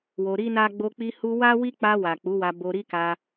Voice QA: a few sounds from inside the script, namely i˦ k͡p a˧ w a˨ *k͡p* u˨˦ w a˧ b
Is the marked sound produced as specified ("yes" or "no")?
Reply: yes